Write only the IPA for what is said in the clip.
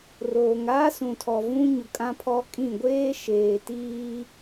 roː˨ŋaː˦sũ˨tʰɔ˨ vũ˦ɲʊ˨ kʼã˦pʰɔ˦kʼĩ˦˨ ɡʷeː˦ʃeː˨tiː˦

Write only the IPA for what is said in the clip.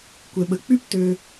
kʷɛ˨ɓə˨ k͡py˦p tø˧

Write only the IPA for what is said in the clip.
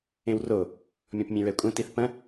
ẽwro | mʲɔ̃pmʲẽɹɛkʷʼɐ̃ tiθpɐ̃

